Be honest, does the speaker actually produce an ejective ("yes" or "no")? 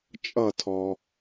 yes